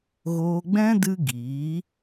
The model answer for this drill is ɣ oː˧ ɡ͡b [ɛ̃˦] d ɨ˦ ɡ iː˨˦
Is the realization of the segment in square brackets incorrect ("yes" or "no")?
no